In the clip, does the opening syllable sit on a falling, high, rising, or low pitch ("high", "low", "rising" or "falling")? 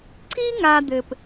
high